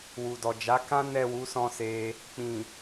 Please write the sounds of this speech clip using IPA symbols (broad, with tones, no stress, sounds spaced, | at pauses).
w u˨ d ɔ˨ d͡ʒ a˨˦ k ã˦ n ɛ˦˨ w u˨˦ s ɔ̃˦˨ s e˧ | k͡p ĩ˨